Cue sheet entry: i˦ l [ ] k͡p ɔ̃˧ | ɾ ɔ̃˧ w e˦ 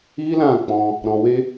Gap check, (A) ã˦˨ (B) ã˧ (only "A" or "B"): A